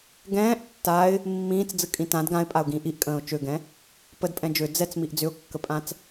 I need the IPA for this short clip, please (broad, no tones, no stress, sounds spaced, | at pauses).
ɡ ɛ̃ː ʔ tː a ɪ̯ | mː ĩː t͡s d͡z ɯ kʼ ĩ t ã d ɡ ã ɪ̯ pʼ a ʊ̯ ɡ ĩː ʔ i ʔ kʼ ə̃ː ʊ̯ t͡ʃ ø ɡ ɛ̃ | p ə d pʼ ɛ̃ d͡ʒ ø d͡z ɛ t͡s m i ʔ d͡z ʏ ʊ̯ kː ə pʼ ã t͡s